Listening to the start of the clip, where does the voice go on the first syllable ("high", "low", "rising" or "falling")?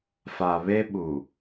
low